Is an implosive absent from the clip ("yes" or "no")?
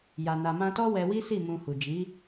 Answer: yes